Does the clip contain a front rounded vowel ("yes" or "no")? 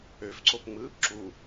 yes